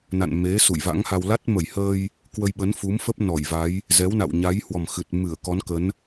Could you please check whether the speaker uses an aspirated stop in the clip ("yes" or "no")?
no